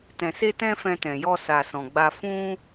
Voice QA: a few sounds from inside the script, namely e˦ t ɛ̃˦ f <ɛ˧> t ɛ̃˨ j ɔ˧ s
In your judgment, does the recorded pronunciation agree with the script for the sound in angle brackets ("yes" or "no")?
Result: no